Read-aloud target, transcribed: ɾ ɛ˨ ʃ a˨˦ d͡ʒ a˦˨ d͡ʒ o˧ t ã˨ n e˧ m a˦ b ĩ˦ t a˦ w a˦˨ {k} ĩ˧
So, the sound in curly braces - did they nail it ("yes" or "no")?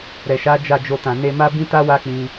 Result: no